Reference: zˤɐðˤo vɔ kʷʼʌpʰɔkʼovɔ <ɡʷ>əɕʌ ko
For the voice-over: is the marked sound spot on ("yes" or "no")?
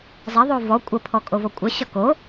no